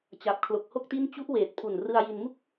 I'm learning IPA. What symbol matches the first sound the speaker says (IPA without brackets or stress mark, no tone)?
t͡ɕ